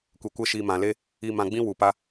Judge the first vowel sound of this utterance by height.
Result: mid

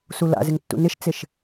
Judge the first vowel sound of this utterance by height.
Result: high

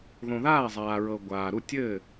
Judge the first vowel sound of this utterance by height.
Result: mid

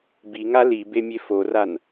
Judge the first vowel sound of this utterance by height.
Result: high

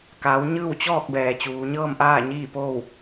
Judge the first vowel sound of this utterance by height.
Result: low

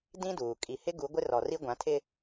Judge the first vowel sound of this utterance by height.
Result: high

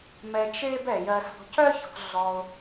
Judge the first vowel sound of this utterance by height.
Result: mid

